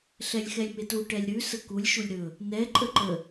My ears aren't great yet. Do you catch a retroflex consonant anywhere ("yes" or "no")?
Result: yes